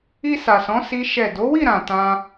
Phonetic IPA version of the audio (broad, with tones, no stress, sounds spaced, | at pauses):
i˧ s a˨ s ɔ̃˨˦ s i˦ ʃ ɛ˦˨ d o˨˦ w i˦˨ ɾ ã˨ t ã˧